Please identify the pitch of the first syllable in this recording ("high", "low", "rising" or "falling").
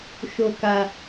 low